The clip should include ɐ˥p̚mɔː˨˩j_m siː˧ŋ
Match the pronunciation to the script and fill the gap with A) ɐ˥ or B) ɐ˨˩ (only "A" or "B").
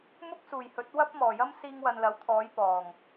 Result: A